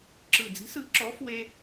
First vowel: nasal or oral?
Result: oral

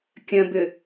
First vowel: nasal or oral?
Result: nasal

